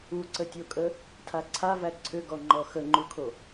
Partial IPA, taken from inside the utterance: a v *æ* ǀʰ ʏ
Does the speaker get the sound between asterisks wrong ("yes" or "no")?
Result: no